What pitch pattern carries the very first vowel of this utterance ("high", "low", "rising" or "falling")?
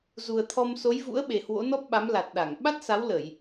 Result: low